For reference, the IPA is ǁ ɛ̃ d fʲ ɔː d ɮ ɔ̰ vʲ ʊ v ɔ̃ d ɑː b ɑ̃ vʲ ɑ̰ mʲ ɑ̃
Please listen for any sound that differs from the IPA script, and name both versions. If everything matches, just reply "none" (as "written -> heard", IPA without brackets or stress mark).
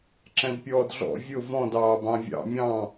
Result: fʲ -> pʲ